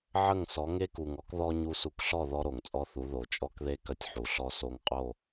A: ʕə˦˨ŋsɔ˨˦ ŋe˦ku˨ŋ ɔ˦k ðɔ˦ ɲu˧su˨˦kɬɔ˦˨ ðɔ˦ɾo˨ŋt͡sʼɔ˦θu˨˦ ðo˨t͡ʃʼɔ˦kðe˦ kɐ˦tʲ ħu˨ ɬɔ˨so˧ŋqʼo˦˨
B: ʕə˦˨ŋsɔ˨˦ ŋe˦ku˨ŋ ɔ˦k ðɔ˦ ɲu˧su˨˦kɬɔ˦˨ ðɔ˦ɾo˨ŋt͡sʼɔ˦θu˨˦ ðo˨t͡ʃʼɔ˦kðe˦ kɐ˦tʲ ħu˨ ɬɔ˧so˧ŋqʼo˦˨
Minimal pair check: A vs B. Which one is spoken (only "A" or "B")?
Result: B